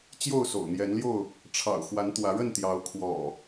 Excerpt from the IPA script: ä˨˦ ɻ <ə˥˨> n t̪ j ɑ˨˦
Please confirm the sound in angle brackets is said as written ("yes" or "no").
yes